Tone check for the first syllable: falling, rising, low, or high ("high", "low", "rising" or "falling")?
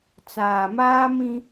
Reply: low